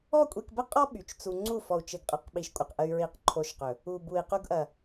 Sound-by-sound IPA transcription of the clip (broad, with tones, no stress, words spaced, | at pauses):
ɔ˦kʷʼi˧kbə˦ qʼɔ˦ ɓy˨t͡ʃt͡su˧ ŋ͡ǀu˦˨ fɔ˨u̯t͡ʃɘ˨ɡqʼə˨qɓi˨ʃ kʷʼə˨q ʔə˧y̯ɹi˧q ǃʰo˧ʃqɵ˨ | u˨bu˨i̯qu˧ɡʔɐ˨